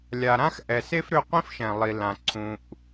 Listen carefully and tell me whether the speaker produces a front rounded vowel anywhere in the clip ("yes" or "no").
yes